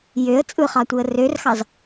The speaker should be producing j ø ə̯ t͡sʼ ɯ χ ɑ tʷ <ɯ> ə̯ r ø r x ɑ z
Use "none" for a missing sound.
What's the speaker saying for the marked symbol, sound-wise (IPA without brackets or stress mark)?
ɯ